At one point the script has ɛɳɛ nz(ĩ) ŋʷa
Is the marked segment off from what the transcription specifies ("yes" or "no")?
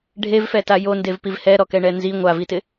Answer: yes